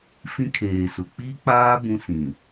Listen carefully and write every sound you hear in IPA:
f ĩ˦ kʰ eː˨ s ʊ˨ k͡p i˦ k͡p aː˦ b ũ˦ s ĩ˨

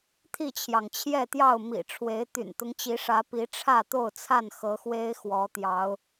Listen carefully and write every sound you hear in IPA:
t̪ʰ i˥˨ t͡ɕʰ j ɑ˩ ŋ t͡ɕʰ j ɛ˥˨ t̪ j ɑ˥˨ ʊ̯ m ḭ˨˩ ʈ͡ʂʰ w e˨˦ ɪ̯ t̪ y̰˨˩ n t̪ ʊ˦ ŋ t͡ɕ i˨˦ ʂ ä˨˦ p i˨˦ ʈ͡ʂʰ ä˥˨ t̪ o˥˨ ʊ̯ t͡sʰ a˥˨ n x ɤ˨˦ x w e˦ ɪ̯ x w ɔ˨˦ t̪ j ɑ˨˦ ʊ̯

